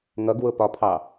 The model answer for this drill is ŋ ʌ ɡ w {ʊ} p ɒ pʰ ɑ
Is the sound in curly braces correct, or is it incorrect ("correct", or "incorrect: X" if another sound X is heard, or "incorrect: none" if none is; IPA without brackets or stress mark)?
correct